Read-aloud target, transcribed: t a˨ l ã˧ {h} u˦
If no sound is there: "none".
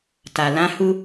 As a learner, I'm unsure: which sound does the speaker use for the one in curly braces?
h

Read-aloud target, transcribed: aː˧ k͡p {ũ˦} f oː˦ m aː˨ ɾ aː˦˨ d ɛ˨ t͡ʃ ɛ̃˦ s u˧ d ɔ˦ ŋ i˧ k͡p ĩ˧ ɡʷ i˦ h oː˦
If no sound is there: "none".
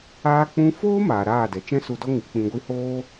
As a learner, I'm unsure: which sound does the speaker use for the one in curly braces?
ũ˧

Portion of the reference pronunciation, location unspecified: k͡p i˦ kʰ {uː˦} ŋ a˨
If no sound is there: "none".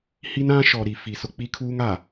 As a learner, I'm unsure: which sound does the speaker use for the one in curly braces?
uː˦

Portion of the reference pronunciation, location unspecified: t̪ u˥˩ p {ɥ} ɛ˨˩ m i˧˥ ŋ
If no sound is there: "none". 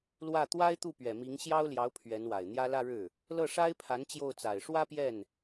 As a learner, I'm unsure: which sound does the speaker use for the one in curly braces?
ɥ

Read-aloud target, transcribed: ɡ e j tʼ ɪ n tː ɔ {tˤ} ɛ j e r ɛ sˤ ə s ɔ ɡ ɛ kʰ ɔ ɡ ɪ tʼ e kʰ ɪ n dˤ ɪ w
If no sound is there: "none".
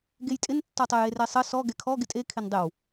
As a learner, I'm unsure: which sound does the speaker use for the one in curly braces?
tˤ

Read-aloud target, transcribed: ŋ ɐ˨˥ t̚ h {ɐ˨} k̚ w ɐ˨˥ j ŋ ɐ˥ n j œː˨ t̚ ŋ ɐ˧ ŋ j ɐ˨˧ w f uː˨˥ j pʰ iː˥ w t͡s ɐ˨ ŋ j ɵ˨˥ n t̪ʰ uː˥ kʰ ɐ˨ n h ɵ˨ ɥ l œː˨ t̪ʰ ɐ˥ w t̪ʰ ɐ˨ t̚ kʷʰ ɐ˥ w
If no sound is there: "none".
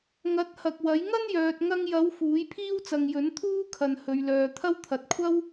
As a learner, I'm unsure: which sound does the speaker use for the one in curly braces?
ɐ˨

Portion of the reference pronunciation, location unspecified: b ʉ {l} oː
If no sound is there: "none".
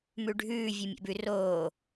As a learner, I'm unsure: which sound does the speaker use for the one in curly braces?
r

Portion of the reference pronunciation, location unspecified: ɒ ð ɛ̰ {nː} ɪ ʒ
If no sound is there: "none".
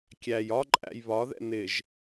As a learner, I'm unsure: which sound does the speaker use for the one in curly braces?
n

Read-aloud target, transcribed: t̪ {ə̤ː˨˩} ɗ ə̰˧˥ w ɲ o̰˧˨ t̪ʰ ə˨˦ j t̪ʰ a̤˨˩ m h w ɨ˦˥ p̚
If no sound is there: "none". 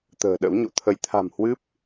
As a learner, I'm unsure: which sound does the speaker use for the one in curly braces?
ə̤ː˨˩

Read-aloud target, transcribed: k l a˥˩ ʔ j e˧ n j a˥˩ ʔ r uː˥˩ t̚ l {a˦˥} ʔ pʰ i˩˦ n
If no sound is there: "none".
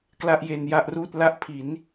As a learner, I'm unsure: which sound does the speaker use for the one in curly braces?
a˦˥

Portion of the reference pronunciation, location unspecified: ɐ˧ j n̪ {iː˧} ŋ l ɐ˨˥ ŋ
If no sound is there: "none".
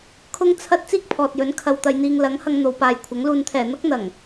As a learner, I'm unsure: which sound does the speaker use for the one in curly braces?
iː˧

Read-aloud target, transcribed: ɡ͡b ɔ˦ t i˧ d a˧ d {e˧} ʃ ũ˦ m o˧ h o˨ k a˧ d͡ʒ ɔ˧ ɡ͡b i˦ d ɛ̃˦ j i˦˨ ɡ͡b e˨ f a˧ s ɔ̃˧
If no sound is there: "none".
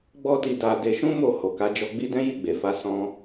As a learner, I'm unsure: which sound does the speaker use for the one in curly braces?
e˧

